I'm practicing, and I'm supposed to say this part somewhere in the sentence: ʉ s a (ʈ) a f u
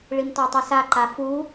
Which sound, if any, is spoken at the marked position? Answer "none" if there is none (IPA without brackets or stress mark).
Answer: ǃ